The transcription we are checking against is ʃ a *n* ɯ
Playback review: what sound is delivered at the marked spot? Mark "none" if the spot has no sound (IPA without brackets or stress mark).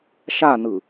n